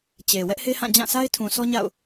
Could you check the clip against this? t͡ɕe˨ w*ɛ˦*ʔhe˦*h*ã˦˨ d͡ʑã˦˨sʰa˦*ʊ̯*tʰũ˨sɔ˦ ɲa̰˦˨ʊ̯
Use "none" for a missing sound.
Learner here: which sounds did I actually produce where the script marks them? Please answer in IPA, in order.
ɛ˦, h, ɪ̯

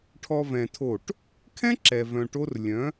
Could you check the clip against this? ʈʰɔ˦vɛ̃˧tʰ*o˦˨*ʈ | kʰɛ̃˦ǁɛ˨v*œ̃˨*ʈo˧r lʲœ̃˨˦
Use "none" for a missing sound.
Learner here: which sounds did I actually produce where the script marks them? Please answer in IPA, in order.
o˦˨, œ̃˨

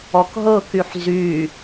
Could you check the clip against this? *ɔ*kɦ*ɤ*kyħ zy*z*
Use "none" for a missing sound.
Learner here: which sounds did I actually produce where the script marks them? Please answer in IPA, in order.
ɔ, ɤ, none

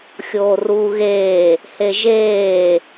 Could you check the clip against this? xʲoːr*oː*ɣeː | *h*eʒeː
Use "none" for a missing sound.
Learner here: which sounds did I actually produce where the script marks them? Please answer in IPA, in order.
uː, h

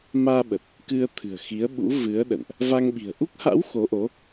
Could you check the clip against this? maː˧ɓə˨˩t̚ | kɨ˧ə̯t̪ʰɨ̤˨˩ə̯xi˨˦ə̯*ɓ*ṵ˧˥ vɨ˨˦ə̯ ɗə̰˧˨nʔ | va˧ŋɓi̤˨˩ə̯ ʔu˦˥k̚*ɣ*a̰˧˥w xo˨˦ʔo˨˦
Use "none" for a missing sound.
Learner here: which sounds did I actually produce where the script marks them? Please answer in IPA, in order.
ɓ, h

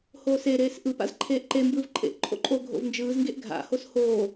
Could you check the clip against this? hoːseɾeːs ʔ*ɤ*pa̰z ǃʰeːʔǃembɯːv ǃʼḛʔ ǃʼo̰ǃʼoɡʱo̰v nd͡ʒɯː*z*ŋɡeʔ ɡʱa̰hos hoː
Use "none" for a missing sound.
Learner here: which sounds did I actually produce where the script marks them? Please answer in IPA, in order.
ɯ, z

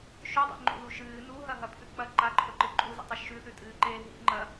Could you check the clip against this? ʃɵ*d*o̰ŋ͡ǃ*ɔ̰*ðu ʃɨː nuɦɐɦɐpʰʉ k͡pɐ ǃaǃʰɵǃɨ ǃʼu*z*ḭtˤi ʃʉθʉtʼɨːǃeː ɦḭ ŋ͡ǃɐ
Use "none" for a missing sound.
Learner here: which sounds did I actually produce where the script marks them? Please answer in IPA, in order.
dˤ, o̰, z

